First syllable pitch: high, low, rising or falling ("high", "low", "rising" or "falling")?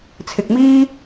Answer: low